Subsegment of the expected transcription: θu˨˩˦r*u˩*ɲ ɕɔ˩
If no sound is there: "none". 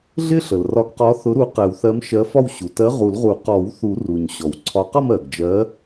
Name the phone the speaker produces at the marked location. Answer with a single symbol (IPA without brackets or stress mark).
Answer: u˩